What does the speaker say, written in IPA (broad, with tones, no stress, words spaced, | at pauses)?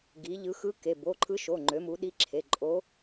ɡi˩˧ ʎɯ˩˧ xɯ˧˥ke˩˧˩ bo˩˧˩ǃʰɯ˧˥ʃo˩˧˩ ŋ͡ǃø˩˧mu˩˧ ɗi˧˥ǁʰe˩˧˩ ǃʼo˧˥